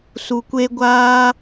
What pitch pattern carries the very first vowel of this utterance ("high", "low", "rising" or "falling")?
low